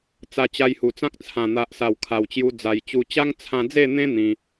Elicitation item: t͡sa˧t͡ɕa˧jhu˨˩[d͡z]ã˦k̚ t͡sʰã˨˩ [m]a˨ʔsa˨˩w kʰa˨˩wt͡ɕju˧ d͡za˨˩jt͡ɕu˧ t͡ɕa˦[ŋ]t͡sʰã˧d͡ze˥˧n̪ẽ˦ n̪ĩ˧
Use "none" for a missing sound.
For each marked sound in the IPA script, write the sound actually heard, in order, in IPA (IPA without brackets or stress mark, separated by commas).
t͡s, n̪, ŋ